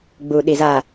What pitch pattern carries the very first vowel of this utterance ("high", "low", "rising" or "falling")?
low